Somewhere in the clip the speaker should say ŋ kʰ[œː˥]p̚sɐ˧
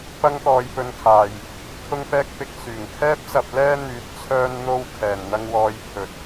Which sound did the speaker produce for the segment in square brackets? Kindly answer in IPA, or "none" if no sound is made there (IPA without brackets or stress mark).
ɛː˥